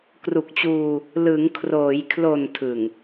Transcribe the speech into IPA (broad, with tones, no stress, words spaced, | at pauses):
kru˨˩k̚t͡ɕuː˧ | lɯ˩˦ŋkʰroː˩˦jkʰlo˨˩n tʰɯ˨˩ŋ